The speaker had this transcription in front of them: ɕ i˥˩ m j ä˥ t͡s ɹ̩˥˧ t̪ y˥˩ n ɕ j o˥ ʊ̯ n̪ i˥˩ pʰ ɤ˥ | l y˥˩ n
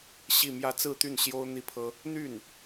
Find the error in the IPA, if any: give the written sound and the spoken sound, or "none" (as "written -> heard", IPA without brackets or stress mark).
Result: l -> n̪